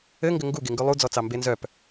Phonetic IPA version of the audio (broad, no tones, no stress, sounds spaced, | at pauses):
ɘ ŋ ɡ ɘ ŋ ɡ u ɡ e ŋ ɡ ʉ lˠ u d͡z ɔ t͡s ɑ m b e n z œ p